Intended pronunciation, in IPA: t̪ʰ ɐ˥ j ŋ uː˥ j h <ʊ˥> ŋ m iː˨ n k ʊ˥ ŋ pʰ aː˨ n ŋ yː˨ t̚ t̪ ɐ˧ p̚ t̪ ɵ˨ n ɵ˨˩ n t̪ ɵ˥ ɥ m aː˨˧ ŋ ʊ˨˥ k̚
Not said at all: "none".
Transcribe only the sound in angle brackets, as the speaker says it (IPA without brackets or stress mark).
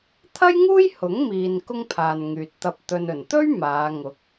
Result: ʊ˨˥